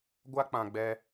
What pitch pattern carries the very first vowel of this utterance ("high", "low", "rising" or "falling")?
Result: high